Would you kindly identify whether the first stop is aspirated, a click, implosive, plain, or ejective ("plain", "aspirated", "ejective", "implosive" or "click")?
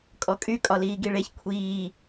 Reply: ejective